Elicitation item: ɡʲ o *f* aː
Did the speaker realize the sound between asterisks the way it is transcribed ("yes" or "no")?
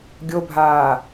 no